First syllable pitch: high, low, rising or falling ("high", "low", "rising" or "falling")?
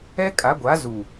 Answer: high